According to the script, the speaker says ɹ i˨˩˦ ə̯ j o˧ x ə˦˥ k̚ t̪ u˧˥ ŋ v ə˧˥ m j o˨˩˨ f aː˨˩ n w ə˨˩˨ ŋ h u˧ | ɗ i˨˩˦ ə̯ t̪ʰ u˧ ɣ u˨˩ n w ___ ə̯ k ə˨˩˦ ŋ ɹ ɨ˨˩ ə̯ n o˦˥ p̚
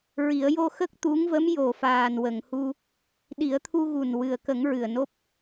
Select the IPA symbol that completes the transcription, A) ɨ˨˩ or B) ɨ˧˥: A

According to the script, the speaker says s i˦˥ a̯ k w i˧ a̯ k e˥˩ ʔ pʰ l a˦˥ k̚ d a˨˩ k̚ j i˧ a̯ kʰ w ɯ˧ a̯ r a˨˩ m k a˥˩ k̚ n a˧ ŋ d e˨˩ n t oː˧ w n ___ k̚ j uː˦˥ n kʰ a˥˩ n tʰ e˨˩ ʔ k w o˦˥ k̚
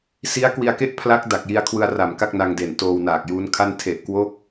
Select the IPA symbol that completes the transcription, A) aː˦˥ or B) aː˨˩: B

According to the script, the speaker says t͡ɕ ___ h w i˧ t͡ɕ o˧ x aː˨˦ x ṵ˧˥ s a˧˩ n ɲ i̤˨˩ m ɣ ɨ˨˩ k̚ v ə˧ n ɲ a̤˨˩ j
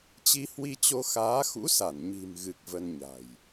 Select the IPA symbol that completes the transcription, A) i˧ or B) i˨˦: A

